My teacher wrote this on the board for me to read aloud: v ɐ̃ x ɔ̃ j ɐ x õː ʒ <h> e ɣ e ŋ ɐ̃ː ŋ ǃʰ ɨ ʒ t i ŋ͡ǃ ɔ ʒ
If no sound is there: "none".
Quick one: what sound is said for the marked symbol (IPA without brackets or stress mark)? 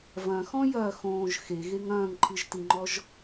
x